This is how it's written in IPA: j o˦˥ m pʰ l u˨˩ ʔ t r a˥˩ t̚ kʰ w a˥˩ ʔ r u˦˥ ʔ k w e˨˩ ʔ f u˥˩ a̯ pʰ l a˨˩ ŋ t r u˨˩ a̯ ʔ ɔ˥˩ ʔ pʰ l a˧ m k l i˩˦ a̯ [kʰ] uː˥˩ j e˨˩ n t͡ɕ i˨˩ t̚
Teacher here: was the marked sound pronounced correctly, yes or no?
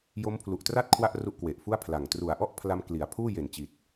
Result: no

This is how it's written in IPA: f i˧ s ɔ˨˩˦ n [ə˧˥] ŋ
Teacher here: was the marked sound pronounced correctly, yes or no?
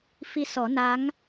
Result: no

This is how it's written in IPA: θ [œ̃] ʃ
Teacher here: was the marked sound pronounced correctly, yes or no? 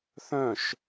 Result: yes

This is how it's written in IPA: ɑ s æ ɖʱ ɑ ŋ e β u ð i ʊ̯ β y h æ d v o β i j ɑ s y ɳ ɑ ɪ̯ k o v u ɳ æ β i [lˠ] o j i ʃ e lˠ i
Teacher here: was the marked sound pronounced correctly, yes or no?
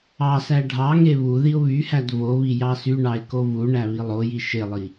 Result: yes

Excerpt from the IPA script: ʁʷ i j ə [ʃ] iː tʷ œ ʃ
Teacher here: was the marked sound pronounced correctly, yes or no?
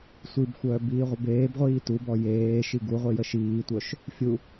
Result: yes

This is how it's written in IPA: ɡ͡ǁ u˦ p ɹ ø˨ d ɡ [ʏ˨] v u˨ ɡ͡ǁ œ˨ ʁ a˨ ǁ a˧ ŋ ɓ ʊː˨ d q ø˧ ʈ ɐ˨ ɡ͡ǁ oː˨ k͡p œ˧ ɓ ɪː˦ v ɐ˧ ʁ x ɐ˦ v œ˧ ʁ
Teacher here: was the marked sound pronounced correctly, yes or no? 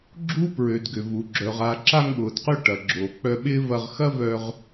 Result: yes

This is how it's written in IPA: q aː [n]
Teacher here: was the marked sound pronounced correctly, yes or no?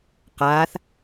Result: no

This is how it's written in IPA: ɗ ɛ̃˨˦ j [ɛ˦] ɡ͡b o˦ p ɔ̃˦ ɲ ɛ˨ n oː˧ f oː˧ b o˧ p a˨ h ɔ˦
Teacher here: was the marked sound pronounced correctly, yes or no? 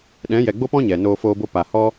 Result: no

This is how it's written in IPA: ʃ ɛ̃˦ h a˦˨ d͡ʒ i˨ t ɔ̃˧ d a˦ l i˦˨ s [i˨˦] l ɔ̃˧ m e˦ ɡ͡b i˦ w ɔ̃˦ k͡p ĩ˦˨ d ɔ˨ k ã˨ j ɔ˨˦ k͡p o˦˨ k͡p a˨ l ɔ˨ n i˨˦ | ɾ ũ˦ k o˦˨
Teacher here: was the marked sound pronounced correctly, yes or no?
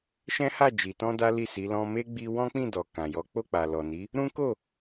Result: yes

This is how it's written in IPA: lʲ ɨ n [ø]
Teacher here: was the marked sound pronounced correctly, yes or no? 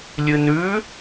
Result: no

